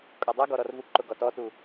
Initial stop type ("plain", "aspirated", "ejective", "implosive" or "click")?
ejective